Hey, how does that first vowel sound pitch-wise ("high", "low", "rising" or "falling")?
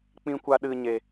high